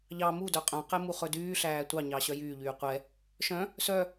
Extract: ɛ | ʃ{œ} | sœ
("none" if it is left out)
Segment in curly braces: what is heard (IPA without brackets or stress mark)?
œ̃